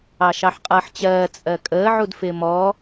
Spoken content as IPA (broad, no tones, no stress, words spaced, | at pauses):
ɑʃɑħqʼʌːħt͡ɕɜː t͡sʼɜkʼəː ʕudfɪːmɔː